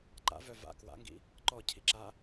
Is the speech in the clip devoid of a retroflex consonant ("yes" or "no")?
yes